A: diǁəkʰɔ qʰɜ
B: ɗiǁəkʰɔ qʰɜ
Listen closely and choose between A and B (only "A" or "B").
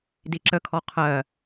A